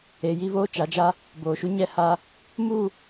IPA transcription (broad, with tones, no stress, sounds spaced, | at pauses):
e˨ j i˦ v oː˦ t͡ʃ a˨˦ d͡ʒ a˦ | b oː˨ ʃ u˦ ɲ ɛ˦ h a˦ | m u˦˨